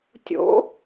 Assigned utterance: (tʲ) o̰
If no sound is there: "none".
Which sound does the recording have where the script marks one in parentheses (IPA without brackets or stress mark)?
tʲ